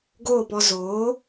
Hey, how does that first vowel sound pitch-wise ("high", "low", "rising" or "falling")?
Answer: falling